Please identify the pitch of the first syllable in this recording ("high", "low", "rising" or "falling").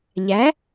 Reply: rising